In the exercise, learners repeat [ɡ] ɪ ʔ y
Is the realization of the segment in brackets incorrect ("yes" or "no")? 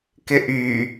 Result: yes